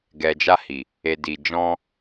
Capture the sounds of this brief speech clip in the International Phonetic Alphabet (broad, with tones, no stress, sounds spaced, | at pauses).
ɡ ɛ˨ d͡ʒ a˧ h i˨ | e˨ d i˨ d͡ʒ ɔ̃˧